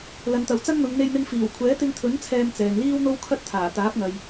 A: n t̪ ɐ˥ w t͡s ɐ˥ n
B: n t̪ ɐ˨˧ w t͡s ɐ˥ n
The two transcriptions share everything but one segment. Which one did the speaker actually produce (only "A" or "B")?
B